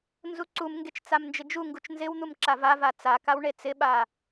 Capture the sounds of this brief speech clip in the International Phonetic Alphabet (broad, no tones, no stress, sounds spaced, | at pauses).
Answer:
n z u ǀ u m ŋ ɡ e t͡ʃ t͡s a m n d͡ʒ ɪ d͡ʒ u ŋ ɡ u t͡ʃ n z ɪ w n̪ u m ǁ a v a v a t͡s a k a w ɳ e t͡s ɪ ɓ a